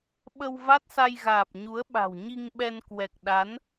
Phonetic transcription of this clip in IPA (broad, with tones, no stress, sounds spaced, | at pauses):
ɓ ə˧ w v a˦˥ t̚ s a˧ j ɣ aː˨˩ p̚ ɲ u˨˦ ə̯ ɓ a̤˨˩ w ɲ i˧ ŋ ɓ ɛ˧ n k w ɛ˨˩ k̚ ɗ a˨˦ n